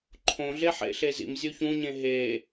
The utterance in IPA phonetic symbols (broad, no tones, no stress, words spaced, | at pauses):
ǃʰõɮe ħḛɬezḭm zʲoçũɲẽ ɦe